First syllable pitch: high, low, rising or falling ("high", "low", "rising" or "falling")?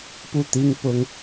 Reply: falling